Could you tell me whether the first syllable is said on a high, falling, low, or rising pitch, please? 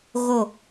falling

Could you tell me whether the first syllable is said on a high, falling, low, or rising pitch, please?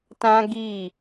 high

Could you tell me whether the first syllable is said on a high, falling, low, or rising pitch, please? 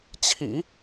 low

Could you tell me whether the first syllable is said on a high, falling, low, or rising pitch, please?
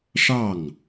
falling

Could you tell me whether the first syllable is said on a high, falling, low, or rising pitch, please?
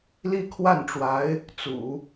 falling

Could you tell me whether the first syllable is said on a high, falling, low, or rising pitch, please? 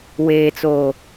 low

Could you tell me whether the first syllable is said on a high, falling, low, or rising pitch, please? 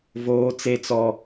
high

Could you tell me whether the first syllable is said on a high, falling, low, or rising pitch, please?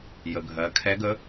low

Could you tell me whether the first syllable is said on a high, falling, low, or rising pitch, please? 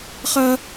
high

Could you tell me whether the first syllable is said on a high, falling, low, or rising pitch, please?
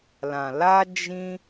low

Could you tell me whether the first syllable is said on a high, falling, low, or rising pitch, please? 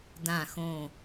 low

